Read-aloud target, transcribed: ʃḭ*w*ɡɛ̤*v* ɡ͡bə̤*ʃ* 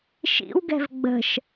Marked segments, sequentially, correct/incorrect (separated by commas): correct, correct, correct